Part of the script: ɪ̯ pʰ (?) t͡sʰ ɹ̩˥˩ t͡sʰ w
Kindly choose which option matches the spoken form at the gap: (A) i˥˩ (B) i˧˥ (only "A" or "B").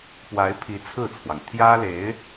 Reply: B